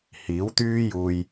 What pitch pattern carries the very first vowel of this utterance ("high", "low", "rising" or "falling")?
rising